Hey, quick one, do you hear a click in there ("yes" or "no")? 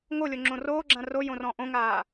yes